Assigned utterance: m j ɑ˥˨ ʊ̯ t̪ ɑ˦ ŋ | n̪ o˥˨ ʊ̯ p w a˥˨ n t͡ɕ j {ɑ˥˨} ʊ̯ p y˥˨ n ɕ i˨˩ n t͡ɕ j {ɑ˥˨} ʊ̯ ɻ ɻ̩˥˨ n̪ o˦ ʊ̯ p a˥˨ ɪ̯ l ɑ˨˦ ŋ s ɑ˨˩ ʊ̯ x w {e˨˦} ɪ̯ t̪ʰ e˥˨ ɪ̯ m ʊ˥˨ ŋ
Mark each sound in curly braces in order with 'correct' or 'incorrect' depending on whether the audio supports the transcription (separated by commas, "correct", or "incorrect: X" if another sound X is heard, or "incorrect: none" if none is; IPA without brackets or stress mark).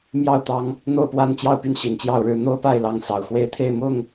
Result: correct, correct, incorrect: e˥˨